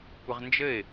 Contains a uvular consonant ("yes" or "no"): yes